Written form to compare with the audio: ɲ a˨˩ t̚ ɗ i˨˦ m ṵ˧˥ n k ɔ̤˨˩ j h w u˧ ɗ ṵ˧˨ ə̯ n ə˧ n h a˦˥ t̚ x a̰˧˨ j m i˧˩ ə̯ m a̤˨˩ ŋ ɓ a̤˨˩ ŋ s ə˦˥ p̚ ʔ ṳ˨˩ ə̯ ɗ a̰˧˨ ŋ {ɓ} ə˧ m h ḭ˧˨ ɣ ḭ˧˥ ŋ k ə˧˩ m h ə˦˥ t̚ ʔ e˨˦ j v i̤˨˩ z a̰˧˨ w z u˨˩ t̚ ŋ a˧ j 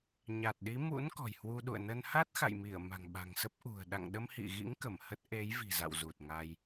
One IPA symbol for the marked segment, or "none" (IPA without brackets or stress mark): ɗ